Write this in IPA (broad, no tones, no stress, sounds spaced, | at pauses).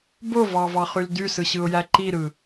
b o v ɑ v ɑ χ y l d y s ɯ ɕ ɯ ʊ̯ j æ ǃ i ɾ ɯ